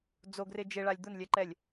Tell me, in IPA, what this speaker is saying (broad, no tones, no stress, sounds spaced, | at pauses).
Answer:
d͡z o ɡ r ɪ d͡ʒ e ɭ a lʲ d̪ ʊ n lʲ ɛ ǃ ɛ lʲ